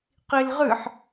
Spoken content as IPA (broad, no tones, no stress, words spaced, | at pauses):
qilʁɨħ